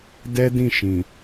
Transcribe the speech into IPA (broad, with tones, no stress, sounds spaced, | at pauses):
d ɛ˦ d ĩ˦˨ ʃ ĩ˨